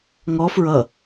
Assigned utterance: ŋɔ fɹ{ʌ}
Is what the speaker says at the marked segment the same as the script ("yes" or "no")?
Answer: yes